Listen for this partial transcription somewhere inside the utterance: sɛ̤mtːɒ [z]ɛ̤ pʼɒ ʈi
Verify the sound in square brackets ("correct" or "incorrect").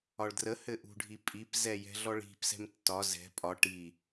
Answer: correct